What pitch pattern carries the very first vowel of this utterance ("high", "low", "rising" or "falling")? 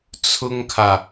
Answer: high